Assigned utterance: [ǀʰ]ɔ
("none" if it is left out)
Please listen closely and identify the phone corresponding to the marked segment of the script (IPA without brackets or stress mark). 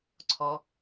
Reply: ǀʰ